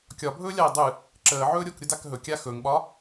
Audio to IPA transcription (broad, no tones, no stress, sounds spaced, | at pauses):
kʲ ɒ bʱ ɵː lʲ a i̯ dˤ ɨ | ǁ əː ʕ ɵː ɾʲ o k ɾʲ ʊ d a k ɦ ɵ kʲ a x ɵ ŋ ɓ ɒ